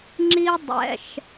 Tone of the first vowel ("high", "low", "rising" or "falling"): high